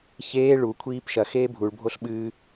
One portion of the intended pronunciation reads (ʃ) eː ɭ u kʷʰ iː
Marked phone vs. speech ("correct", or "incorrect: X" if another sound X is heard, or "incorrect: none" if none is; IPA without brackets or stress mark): incorrect: ç